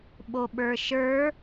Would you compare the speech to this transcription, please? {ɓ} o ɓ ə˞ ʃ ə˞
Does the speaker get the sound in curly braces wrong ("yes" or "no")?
no